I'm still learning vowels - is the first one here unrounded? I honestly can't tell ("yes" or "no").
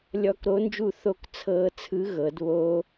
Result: no